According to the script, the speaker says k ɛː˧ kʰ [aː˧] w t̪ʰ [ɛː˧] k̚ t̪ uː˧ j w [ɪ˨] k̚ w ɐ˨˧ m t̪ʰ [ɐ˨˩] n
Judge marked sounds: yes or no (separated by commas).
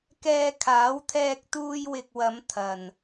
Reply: no, yes, yes, no